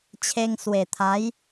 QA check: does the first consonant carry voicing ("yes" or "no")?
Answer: no